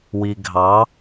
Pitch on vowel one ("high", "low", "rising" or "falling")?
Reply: low